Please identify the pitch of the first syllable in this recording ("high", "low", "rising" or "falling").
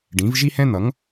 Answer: rising